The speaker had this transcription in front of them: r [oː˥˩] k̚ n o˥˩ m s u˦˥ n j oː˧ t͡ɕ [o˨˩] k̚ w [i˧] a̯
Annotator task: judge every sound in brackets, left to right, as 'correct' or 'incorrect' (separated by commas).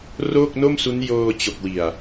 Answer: correct, correct, incorrect